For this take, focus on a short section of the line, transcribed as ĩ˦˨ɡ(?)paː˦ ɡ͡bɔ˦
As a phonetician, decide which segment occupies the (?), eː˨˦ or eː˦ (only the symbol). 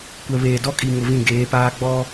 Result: eː˨˦